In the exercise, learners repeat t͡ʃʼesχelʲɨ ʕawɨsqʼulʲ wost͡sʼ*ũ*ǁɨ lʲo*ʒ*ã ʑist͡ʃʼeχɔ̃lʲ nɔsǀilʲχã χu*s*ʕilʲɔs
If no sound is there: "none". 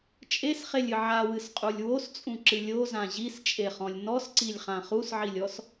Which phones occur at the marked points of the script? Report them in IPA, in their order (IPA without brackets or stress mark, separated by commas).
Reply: ũ, z, s